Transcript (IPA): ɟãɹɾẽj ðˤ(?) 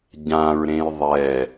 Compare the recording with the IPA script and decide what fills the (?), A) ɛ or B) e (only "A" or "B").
A